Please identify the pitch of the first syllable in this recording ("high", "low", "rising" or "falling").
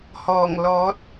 low